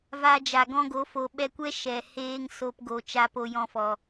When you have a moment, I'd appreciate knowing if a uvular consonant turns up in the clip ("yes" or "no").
no